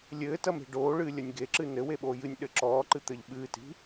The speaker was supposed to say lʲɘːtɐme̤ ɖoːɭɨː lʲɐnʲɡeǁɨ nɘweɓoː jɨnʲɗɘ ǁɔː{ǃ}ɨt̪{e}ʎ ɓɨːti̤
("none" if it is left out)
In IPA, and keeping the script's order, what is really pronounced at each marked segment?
ǃ, ɘ

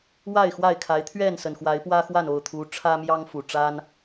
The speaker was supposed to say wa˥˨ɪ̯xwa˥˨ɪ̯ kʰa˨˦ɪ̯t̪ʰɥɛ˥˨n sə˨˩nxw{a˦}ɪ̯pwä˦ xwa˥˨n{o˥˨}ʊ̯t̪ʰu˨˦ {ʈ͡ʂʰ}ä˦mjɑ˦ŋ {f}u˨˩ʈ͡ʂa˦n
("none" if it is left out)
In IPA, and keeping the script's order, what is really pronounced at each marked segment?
a˨˦, o˥˨, ʈ͡ʂʰ, f

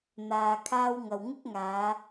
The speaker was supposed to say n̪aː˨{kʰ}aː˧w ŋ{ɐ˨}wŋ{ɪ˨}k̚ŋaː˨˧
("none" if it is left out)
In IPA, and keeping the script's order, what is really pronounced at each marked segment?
kʰ, ɐ˨, ɪ˥

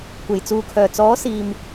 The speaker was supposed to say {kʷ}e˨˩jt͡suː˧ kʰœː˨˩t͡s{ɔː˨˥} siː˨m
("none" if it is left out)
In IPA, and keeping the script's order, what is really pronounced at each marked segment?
kʷ, ɔː˨˥

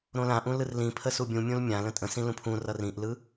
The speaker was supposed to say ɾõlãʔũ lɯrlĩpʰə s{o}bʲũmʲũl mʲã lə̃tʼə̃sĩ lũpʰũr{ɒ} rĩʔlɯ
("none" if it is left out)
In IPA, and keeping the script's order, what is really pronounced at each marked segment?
u, ʌ

